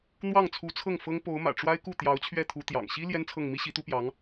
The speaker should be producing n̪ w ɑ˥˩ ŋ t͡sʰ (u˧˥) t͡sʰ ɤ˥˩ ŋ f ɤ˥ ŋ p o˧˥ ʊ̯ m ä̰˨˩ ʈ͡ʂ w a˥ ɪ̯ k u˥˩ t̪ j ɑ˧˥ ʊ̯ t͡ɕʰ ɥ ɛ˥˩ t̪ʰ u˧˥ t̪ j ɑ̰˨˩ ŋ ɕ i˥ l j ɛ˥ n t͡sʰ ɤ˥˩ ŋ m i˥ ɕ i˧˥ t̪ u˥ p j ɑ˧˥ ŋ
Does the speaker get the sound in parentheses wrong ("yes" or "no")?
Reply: no